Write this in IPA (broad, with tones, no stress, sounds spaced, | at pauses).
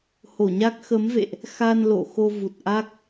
h o˧˩ ɲ a˦˥ k̚ x ə˨˦ m v ḛ˧˨ ʔ | x a˧ n l o̰˧˨ x o˧ v u˨˩ t̚ ʔ a˦˥ k̚